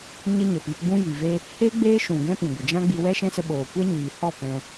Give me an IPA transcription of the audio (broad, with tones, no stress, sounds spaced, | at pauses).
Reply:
ɲ ə˦ ɲ ə˨ p i˧ p ɡ͡b ũ˦ j i˨ v e˦ | h e˦ ɡ͡b eː˦ ʃ ũ˨ ɡ ɛ̃˦ p ĩ˨ ɡʷ ə˨ d͡ʒ ã˦ ɡ͡b i˧ w ɛ˦ ʃ ɛ̃˦ s ə˧ ɓ oː˨ kʷ ɛ˦ ɲ iː˨ h ɔ˦˨ p ɛ̃˧